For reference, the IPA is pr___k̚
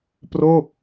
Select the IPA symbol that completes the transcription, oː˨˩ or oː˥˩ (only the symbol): oː˥˩